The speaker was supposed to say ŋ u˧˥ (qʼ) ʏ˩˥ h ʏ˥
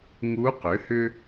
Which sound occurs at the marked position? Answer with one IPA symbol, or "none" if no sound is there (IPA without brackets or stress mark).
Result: q